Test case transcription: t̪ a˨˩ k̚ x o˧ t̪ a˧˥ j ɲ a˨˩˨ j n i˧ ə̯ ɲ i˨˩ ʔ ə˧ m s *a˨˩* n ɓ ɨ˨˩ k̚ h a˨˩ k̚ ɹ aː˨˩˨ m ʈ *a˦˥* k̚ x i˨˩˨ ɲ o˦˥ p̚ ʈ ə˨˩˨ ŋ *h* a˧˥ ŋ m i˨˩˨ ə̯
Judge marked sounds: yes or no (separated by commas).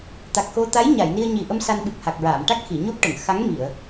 no, yes, no